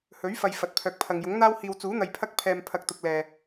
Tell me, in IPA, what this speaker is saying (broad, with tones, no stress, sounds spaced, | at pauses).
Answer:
h ɵ˨˥ ɥ f ɐ˨ j f ɐ˨˥ t̚ pʰ œː˨ k̚ pʰ ɐ˨ ŋ j ʊ˨˥ ŋ n̪ aː˧ w h iː˨ w t͡s uː˨˥ n̪ ɐ˨ j pʰ ɐ˧ k̚ pʰ ɛː˨ m pʰ ɐ˨ k̚ t̪ ʊ˨ k̚ l ɛː˨